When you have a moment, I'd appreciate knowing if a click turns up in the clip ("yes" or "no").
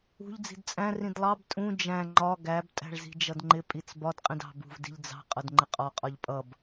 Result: yes